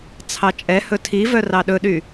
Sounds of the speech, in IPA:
t͡sʰ ɑ t͡ʃʼ ɛ h ɵ tʰ i v œ r ɑ ɗ ɵ ɗ y

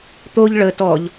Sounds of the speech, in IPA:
t̪ o ʎ ɭ ə t ɔ ʎ

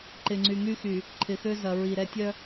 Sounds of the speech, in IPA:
ǃ ɪ˨ ŋ͡ǀ y˨ ŋ y˦ x y˨ | ǃʰ ɪ˨ x ø˦ z ɐ˨ ɹ i˨ ɾ ɛ˦ tʲ œ˦

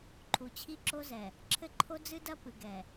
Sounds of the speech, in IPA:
ǃʰ u˨ t͡ɕʰ i˦ ǁ o˦ z ɛ˨ | ǁʰ ɘ˦ ǃʰ o˦ d͡z ɨ˦ d ɐ˦ p ɨ˨ ɡ ɛ˨

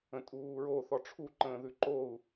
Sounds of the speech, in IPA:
ə̃ tʼ uː ɹ o θ ɔ ʈ͡ʂʰ u ǃ ə̃ː ð ʉ ǃ o u̯

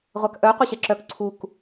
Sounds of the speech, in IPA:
ʁʷ a k ʔ œ qʷ e ɕ ɛ ǁ œ k ǀʰ u k

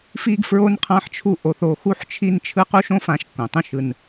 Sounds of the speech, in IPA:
f i˦ ɡ f ɹ o˦ n qʰ ã˦ ħ t͡ʃʰ u˦ ʔ o˧ θ o˧ x u˦ ħ t͡ʃʰ i˦ n t͡ʃʰ ɯ˦ q u˦ ʃ õ˦ f ã˧ ʃ kː õ˨ tˤ ũ˦ ʃ ɯ˧ n

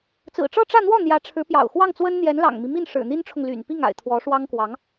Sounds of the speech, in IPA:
t͡s ɹ̩˨˩ ʈ͡ʂ ɤ˥˧ ʈ͡ʂ ä˥˧ n̪ w ɔ˥˩ n̪ j ä˧˥ ʈ͡ʂʰ ɻ̩˧˥ p j ɑ̰˨˩ ʊ̯ x w ɑ˥˩ ŋ t͡s w ə˥ n n̪ j ɛ˧˥ n l ɑ̰˨˩ ŋ m i˦ m i˥˩ n ʂ ɻ̩˨˩ n̪ i˥ n ʈ͡ʂʰ ʊ˨ ŋ l y̰˨˩ n p i˥˩ ŋ a̰˨˩ ɪ̯ t̪ʰ w ɔ˧˥ ʂ w ɑ˥ ŋ k w ɑ˧˥ ŋ

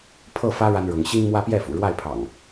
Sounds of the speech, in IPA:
pʰ ɤ˥˨ f ä˦ ɻ a˦ n ɻ ʊ˨˦ ŋ ɕ i˦ ŋ m w ä˦ p j ɛ˥˨ f ṵ˨˩ ɻ w a˥˨ ɪ̯ pʰ ɑ̰˨˩ ŋ

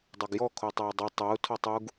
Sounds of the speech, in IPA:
dˤ a ɡ j ɔ kʰ o tˤ o y̯ dˤ u tˤ e u̯ tʰ ɔ tˤ u ɡ

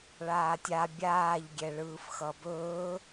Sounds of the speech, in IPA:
ɭ aː tʲ a bʲ aː ʎ ɡʲ ɛ ɭ ɯː f x ʌ b ɵː

